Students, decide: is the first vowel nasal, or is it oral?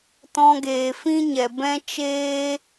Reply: nasal